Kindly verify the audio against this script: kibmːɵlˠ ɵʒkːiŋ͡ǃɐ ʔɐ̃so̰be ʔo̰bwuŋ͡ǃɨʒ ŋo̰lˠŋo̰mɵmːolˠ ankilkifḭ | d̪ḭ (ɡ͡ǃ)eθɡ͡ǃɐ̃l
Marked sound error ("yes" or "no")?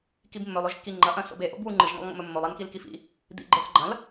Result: no